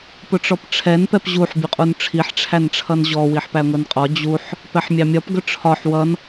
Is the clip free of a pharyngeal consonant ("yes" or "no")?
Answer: no